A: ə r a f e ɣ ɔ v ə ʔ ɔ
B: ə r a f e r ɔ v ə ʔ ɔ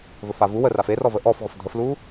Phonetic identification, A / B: B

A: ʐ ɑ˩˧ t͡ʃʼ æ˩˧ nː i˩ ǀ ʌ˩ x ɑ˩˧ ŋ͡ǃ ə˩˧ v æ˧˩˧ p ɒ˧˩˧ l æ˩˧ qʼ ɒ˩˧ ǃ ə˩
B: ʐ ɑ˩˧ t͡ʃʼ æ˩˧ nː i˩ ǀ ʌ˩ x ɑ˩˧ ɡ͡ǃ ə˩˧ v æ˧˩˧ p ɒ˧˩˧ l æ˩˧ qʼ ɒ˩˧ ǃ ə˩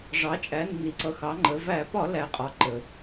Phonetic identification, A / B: A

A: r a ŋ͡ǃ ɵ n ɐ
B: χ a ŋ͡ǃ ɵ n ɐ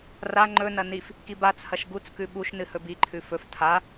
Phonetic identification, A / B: A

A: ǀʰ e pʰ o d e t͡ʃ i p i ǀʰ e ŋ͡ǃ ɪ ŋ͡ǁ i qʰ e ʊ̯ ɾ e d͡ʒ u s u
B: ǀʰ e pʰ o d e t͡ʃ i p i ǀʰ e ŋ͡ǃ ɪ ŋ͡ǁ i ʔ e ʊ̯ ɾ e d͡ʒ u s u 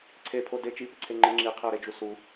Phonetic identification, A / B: A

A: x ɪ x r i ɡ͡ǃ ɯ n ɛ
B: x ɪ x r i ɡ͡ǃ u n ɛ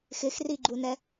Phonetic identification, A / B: B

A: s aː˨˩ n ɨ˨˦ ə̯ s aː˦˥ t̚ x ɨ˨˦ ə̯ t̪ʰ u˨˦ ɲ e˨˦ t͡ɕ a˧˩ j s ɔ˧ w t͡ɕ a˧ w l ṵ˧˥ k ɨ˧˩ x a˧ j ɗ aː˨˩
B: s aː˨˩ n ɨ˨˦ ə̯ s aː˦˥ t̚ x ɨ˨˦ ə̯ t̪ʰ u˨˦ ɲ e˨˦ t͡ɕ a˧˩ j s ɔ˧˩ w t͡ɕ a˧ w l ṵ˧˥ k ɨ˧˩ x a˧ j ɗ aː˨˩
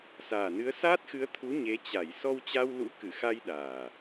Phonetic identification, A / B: A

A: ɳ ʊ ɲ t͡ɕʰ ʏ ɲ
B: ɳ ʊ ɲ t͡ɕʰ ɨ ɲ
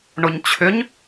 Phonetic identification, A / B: A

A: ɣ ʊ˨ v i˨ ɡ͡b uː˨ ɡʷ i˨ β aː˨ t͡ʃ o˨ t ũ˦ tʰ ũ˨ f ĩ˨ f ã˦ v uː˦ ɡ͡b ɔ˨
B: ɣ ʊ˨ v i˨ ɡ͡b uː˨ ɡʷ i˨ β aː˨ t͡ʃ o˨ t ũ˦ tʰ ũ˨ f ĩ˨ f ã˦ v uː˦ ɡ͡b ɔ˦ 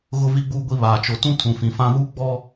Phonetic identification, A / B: B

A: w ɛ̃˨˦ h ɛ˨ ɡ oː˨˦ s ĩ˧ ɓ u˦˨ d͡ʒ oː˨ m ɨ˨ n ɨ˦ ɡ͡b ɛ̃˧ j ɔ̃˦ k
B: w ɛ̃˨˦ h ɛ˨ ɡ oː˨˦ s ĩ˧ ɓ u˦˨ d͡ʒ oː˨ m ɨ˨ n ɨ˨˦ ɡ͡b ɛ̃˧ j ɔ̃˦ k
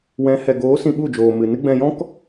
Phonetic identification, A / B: A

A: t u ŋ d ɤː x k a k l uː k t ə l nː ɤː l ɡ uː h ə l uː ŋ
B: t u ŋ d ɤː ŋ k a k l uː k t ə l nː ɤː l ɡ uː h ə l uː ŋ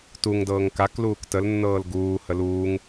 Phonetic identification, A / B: B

